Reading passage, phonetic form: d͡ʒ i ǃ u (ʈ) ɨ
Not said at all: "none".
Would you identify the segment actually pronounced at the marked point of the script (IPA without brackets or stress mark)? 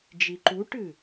ʈ